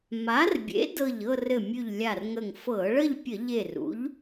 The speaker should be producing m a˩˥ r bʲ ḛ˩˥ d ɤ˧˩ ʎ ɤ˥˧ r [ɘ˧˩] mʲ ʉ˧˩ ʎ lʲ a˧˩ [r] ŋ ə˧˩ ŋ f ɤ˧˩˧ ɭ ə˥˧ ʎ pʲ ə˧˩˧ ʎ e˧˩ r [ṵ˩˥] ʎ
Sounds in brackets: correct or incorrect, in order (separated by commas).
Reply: correct, correct, correct